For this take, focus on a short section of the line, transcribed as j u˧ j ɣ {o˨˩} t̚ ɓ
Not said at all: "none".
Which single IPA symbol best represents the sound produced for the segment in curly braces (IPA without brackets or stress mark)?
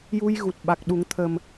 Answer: u˨˩